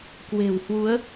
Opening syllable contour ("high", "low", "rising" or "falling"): low